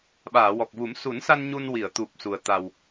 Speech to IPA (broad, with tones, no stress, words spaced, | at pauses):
ɓaː˨˩˨wɔ˨˩k̚vu˨˩˦m su˨˩˦nsa˧n ɲu˧nwi˨˩˨ə̯t̪u˨˩p̚ su˨˩ə̯ t̪a˨˩w